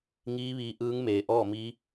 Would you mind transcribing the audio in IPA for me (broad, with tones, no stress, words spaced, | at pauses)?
ŋiː˧˥ʋiː˧ ʔɯː˧˥ŋmeː˩ʔɔː˥˨miː˧˥